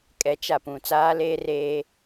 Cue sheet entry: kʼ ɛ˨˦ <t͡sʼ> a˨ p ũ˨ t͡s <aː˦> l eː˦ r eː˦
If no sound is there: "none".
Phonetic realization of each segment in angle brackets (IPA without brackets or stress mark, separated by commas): t͡ʃ, aː˦